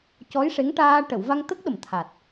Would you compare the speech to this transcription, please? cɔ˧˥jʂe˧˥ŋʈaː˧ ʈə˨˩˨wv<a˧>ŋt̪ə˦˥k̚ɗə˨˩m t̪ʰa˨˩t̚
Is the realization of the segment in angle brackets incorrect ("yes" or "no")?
no